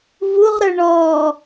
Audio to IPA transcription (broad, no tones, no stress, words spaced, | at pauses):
vuʁɾə˞ ɳɔː